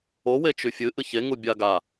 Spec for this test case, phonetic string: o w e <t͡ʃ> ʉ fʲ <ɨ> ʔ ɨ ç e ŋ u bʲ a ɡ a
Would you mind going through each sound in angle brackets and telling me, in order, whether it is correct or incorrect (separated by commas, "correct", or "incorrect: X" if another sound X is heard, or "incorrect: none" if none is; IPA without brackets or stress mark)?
correct, correct